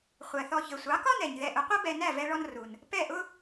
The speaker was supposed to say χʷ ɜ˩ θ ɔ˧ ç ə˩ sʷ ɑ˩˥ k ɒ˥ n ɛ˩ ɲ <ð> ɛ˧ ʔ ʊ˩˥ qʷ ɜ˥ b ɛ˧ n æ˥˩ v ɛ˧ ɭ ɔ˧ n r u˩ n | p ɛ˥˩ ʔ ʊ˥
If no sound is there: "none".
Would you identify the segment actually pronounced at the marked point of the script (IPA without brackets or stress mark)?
ð